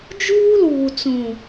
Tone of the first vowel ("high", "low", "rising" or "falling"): high